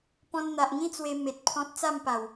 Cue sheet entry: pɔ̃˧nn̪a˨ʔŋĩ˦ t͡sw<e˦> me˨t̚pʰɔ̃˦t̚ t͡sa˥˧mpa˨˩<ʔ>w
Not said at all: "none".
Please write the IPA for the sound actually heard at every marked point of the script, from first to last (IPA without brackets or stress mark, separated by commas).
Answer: e˧, none